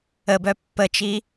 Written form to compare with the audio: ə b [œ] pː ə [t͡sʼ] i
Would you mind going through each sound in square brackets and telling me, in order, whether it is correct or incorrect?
correct, incorrect: t͡ʃ

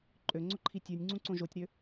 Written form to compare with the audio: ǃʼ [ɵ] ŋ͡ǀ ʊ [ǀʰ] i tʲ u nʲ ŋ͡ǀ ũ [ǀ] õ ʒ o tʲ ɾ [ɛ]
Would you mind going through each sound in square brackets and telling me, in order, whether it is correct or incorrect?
incorrect: ø, incorrect: ǃʰ, correct, incorrect: ø

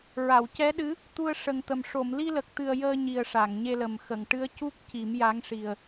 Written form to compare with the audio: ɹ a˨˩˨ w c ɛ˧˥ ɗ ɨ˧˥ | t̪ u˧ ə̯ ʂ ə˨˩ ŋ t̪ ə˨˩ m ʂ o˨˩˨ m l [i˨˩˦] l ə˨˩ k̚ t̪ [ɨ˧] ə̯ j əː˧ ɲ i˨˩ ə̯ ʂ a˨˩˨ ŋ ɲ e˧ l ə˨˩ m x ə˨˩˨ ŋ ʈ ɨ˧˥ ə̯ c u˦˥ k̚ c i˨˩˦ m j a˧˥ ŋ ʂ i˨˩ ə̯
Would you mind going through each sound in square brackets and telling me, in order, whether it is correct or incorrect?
incorrect: i˧, incorrect: ɨ˨˩

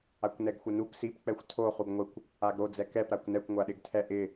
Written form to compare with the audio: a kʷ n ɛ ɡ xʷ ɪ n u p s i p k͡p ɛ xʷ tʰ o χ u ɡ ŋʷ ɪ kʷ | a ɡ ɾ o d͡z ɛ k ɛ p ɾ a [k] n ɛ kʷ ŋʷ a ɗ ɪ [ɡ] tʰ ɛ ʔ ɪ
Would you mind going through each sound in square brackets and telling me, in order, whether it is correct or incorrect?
incorrect: kʷ, correct

